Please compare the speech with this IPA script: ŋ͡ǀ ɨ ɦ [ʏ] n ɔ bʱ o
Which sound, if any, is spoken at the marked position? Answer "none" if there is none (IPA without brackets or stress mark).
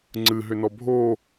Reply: ʏ